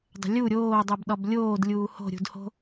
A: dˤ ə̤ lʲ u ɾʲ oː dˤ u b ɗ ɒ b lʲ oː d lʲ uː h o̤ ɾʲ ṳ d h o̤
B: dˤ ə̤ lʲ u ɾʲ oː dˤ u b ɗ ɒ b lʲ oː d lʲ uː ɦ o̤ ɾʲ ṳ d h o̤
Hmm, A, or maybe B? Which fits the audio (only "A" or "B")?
A